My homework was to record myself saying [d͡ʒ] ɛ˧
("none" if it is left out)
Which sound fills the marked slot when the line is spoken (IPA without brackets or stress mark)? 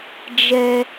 d͡ʒ